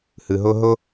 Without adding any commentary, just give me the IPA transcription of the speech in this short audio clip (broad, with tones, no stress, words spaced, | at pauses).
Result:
hɯ˩ɦo˦ɦo˥